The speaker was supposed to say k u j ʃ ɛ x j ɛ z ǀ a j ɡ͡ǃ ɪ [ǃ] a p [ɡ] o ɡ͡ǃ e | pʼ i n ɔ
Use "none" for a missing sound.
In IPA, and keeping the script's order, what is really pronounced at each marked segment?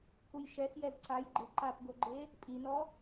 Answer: ǃ, ɡ

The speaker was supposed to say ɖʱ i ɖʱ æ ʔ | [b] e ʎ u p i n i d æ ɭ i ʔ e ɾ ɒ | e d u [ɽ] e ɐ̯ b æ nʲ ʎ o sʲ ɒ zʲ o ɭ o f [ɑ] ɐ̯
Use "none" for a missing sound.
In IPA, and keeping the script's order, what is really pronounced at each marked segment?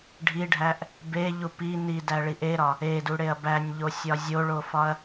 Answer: b, ɽ, ɒ

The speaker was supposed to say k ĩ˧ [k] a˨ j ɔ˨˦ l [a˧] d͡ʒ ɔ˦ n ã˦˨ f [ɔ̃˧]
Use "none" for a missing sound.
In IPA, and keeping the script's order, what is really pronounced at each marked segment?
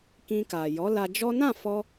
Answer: k, a˧, ɔ˧

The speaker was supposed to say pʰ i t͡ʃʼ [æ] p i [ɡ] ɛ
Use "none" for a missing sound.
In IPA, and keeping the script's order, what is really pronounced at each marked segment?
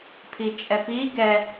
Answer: ɛ, ɡ

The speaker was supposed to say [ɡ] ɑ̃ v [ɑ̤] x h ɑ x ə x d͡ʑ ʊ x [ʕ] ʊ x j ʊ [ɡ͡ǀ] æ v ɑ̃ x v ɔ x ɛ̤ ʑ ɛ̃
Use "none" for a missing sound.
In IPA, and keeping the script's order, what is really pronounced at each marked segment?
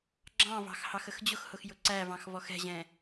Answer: ɡ͡ǁ, ɑ̤, h, ǀ

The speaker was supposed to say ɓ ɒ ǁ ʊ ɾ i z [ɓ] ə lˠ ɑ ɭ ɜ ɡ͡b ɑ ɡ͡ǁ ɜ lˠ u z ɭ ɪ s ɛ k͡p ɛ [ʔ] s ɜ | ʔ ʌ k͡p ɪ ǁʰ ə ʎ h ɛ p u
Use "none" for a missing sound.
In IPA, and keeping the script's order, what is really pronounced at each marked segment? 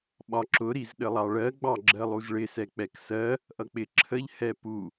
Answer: ɗ, k

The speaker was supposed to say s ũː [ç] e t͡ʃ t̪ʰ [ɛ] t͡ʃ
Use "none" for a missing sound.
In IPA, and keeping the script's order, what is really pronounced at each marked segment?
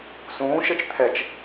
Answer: ʃ, ɛ

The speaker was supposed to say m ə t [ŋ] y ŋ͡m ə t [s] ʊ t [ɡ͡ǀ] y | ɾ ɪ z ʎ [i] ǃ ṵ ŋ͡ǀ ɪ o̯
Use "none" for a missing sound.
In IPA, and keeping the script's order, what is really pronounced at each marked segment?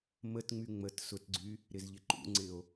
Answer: ŋ͡m, s, ɡ͡ǀ, ɪ

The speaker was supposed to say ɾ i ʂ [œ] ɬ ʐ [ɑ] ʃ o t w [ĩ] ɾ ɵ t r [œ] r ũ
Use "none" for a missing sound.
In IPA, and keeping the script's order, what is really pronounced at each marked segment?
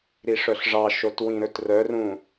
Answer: œ, ɑ, ĩ, œ

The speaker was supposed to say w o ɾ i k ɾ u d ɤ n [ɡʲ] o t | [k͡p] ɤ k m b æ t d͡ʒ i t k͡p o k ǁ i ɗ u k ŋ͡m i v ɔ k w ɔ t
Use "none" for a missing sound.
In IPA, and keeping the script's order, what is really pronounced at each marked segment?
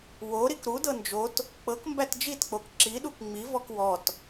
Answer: d͡ʒ, k͡p

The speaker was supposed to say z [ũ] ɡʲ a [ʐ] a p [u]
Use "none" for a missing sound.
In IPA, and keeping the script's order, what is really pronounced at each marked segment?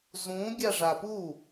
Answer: ũ, ʐ, u

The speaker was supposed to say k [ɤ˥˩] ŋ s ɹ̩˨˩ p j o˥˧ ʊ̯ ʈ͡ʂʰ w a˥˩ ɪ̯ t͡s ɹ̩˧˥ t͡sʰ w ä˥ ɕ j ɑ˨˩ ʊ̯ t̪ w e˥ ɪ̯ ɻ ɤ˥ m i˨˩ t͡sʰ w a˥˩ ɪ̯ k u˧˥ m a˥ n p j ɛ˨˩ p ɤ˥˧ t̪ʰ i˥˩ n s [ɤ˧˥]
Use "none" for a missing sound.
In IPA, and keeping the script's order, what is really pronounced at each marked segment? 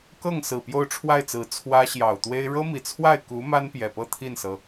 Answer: ɤ˥˩, ɤ˩

